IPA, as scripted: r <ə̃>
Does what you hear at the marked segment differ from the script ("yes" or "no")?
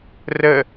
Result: yes